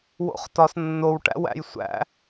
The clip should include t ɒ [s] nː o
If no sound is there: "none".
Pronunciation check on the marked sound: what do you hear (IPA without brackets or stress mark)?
s